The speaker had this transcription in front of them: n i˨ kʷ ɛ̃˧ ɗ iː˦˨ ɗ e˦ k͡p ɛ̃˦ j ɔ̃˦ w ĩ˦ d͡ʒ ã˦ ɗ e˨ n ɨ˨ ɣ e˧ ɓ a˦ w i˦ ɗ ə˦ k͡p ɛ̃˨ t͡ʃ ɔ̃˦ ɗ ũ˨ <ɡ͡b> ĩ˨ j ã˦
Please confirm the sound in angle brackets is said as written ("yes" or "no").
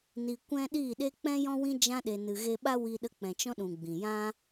yes